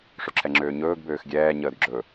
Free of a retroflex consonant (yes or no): no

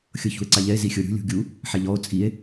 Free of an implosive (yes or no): yes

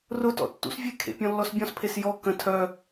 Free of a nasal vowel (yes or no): no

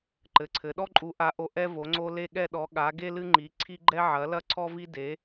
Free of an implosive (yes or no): no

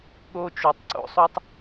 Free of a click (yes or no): no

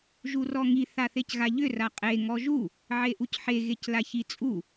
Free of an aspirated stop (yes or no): yes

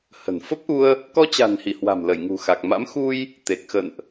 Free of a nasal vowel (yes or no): yes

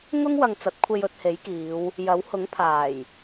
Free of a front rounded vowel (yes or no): yes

